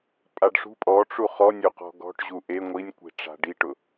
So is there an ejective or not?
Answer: yes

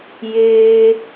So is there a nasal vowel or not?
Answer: no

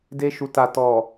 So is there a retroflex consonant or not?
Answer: no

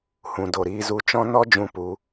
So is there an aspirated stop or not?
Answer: no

